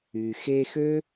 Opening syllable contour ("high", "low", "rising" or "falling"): low